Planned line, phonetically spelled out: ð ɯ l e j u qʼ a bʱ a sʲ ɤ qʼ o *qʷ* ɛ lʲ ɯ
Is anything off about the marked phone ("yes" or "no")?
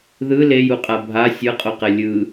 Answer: yes